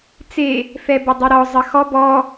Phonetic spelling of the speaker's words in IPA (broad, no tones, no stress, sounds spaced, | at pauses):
t͡s e | f ɛ b ə dˤ y ɾ ɔ zˤ ə x ɔ b ɔ